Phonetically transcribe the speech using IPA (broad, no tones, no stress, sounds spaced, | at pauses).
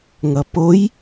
ŋ ʌ p o j